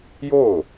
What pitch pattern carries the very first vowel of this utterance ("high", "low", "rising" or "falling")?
falling